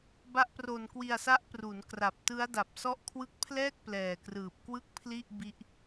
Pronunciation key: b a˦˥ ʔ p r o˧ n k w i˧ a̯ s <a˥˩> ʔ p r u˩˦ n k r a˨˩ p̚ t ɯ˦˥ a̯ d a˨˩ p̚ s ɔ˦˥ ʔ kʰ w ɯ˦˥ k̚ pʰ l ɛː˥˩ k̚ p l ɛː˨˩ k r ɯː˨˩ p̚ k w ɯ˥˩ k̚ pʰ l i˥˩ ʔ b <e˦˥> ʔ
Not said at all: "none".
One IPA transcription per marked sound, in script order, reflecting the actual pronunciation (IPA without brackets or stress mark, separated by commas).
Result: a˦˥, i˦˥